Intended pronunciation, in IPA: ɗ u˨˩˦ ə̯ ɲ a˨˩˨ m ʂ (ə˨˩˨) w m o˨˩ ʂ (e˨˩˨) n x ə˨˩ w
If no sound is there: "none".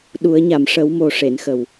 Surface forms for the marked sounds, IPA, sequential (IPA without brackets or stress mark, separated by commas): ə˨˩˦, e˨˩˨